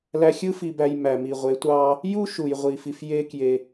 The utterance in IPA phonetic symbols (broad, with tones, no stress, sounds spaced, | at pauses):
l æ˧ xʲ ɯ˥ f i˧ b æ˧ j m æ˩ m i˩ ʁʷ e˩˧ tʷ ɑ˧ | j u˥ ʃ u˩ j ʁʷ i˩ f i˩ f j e˧ k j e˩